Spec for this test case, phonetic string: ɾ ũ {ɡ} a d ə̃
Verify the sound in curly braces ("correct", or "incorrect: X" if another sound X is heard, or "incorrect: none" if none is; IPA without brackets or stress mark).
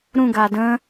correct